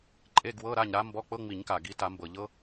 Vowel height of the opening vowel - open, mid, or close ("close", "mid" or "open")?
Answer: mid